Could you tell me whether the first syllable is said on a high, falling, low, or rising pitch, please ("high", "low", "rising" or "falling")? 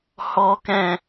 low